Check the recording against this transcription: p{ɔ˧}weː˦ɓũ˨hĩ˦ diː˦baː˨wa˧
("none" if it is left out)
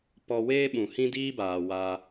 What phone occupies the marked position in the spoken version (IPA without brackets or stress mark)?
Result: ɔ˧